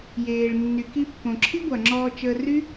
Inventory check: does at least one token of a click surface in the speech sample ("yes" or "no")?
yes